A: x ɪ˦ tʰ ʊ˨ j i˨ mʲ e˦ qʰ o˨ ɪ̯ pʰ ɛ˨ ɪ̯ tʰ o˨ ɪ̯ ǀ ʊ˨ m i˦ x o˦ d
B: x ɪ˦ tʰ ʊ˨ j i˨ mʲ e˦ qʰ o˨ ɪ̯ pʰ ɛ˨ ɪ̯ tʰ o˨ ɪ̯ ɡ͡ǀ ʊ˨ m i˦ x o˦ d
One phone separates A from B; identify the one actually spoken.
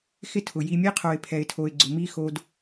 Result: B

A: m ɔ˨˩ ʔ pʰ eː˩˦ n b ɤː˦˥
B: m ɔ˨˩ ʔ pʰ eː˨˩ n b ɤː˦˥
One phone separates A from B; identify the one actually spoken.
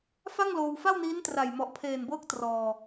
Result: B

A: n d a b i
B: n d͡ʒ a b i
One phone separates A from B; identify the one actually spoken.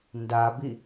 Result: A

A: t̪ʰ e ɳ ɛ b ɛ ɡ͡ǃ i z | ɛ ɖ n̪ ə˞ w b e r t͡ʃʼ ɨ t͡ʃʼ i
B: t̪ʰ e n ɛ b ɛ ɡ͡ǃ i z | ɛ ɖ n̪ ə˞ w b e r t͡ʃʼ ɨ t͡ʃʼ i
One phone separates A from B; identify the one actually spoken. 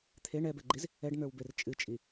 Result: A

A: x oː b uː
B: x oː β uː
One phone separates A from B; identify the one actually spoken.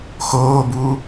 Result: A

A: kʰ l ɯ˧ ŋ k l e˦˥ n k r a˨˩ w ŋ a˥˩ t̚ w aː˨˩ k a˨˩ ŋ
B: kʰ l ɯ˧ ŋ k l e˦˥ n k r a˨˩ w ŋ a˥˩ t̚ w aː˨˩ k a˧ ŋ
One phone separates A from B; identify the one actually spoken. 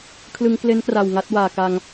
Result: B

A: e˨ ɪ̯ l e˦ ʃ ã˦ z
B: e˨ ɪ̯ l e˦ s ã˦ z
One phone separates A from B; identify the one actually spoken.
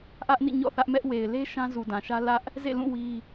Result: A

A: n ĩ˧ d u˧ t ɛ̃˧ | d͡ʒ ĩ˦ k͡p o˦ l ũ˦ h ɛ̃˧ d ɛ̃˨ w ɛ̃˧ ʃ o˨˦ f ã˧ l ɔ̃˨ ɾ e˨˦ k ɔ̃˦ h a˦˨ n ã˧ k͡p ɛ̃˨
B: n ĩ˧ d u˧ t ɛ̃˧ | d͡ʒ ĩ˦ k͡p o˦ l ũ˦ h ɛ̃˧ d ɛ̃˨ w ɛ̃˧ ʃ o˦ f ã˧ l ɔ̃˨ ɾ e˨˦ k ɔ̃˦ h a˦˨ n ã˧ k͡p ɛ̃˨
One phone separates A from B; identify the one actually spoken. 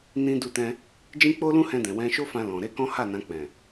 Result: B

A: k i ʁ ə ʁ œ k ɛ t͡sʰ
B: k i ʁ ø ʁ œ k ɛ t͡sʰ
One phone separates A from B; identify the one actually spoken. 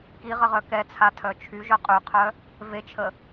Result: A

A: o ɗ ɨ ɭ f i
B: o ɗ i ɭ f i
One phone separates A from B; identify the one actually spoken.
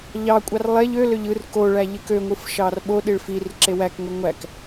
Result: B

